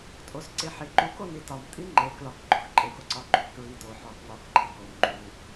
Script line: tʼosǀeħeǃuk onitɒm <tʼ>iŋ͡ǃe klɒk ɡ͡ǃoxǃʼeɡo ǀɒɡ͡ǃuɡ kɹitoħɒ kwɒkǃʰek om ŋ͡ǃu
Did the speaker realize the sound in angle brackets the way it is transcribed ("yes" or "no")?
yes